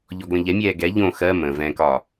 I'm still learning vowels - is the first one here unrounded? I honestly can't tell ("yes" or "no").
no